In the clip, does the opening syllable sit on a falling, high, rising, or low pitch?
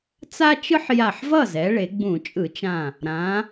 high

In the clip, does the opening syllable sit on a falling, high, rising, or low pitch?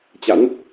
rising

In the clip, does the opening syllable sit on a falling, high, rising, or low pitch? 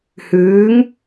rising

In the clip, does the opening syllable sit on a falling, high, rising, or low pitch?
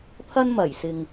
high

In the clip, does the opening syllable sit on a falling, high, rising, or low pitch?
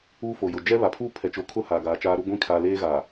high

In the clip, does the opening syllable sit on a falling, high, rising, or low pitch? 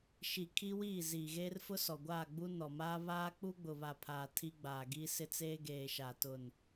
low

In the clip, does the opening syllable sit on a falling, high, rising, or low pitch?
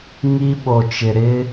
high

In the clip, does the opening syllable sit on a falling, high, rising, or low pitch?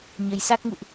rising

